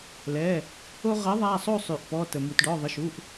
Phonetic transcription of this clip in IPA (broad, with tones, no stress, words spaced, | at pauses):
lɛ˩˧˩ | o˧ʁɜ˩˥ ðˤa˩˧˩sˤo˥˨sˤʉ˩ʔ pɔ˩˧˩tə˩ mu˩tɖɔ˩˧˩ðˤə˩˧˩ʃu˩˧˩ʔ